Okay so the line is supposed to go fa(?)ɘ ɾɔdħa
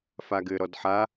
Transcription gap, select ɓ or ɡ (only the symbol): ɡ